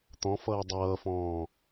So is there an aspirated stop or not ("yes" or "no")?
no